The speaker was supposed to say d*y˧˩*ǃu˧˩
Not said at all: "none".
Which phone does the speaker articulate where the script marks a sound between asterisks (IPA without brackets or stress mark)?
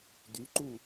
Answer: y˩˧